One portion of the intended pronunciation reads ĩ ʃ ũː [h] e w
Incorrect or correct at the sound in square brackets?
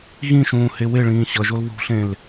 correct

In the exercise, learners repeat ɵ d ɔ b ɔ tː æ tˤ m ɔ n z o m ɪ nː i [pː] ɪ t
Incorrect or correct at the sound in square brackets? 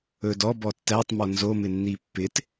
correct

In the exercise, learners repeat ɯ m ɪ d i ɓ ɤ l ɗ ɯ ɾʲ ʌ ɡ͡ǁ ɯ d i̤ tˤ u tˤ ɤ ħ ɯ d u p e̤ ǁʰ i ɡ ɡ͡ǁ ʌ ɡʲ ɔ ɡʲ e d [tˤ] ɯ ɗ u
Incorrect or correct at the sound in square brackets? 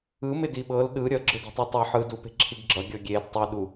correct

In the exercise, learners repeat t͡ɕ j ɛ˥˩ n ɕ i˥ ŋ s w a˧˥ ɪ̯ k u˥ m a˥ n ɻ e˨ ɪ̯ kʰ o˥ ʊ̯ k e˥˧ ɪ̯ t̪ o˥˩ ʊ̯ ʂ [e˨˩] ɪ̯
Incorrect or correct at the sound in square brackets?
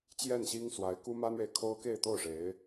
incorrect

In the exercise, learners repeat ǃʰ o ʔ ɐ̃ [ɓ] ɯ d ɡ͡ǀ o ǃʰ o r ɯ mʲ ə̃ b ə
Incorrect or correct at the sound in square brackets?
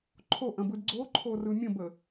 incorrect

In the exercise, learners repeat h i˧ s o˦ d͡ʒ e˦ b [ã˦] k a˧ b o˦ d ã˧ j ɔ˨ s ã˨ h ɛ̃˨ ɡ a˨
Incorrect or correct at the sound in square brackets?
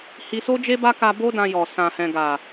incorrect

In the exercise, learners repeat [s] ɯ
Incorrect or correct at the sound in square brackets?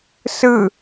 correct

